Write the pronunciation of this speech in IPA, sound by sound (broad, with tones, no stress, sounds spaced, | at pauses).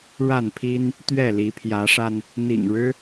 ɻ a˥˨ n pʰ i˦ n | t̪ ɥ ɛ˥˨ l i˨˦ pʰ j ä˨˦ ʂ a˧ n | n̪ ḭ˨˩ ŋ ɻ ɻ̩˦